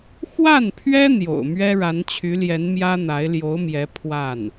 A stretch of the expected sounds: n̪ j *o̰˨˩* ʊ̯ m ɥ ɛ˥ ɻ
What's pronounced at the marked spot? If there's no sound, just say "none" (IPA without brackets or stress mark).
o̰˨˩